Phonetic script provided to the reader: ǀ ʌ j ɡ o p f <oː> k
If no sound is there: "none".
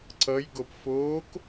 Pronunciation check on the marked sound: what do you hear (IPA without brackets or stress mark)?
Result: oː